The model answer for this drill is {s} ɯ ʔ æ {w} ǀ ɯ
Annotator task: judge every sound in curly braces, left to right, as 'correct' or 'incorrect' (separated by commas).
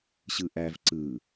incorrect, incorrect